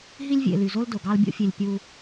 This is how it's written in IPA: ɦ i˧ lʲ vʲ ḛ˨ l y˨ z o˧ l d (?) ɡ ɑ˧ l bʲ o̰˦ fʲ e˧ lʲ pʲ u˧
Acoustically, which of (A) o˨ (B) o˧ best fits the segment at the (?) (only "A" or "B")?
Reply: A